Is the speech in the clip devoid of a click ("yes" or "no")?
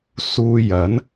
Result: yes